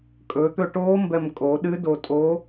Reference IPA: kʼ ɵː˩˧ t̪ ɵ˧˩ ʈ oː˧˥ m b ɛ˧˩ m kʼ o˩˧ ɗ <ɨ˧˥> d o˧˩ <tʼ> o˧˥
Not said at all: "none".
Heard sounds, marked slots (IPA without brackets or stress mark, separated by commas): ɨ˧˥, tʼ